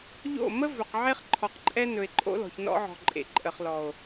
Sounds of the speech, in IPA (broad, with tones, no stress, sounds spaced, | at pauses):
ʎ o̰˦˨ m ə˦ v ɵ˨ q ʕ e˦ χ ǃʰ ɔ˨ q ǃʼ ɛ˦ n ɵ˨ e̯ ǃʼ o̰˦ l ɔ̤˨ ç n ɔ̰˦ ʕ ɔ̤˨ ǃʼ ḛ˨ ǃʼ ə˨ χ l ɔ˨ o̯